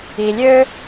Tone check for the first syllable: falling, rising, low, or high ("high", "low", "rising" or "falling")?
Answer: low